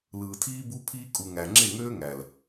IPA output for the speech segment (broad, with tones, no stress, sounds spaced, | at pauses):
l ɯː˨ tʰ iː˦ b u˦ pʰ iː˦ kʼ u˨ ŋ æ˨ ŋ͡ǁ e˦˨ ŋ øː˦ ŋ æ˨ l